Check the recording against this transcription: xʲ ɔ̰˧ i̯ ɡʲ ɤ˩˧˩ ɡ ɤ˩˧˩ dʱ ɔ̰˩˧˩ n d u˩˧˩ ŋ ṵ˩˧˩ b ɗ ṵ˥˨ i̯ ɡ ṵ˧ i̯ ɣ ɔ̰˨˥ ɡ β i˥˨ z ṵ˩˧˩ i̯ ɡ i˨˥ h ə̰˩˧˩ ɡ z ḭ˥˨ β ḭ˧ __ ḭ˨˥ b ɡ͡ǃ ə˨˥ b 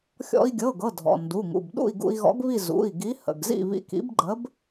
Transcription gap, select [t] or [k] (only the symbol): k